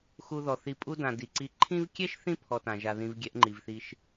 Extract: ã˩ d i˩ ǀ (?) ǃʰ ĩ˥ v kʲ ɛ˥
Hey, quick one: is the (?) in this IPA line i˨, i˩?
i˨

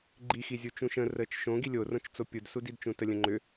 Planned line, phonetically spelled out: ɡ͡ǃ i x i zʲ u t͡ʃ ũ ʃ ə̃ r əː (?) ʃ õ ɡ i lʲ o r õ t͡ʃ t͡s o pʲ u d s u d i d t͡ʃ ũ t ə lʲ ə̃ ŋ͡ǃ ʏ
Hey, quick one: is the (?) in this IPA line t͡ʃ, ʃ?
t͡ʃ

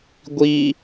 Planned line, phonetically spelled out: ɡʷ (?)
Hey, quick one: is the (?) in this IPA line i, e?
i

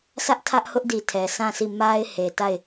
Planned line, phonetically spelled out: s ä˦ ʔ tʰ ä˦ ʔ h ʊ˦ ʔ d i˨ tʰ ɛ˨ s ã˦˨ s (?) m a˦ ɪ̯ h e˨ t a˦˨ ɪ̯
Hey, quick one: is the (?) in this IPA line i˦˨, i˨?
i˦˨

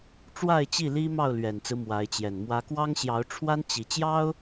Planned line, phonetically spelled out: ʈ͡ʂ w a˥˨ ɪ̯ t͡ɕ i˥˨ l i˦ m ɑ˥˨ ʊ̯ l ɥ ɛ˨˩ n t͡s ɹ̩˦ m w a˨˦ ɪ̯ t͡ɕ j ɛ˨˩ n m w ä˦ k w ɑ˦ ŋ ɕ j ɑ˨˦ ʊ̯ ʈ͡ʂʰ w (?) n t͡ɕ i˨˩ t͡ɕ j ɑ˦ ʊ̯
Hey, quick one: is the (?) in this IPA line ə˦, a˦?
a˦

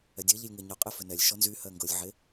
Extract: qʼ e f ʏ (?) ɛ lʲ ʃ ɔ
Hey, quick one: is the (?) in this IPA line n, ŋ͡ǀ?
n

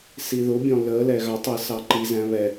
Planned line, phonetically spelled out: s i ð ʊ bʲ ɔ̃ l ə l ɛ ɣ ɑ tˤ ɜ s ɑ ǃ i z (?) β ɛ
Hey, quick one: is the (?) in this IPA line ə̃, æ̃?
æ̃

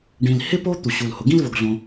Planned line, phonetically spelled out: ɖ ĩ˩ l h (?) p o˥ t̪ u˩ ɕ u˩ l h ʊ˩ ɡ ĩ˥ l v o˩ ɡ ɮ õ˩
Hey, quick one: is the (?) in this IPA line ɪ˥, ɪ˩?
ɪ˥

